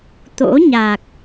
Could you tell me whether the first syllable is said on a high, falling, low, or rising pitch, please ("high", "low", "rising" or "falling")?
rising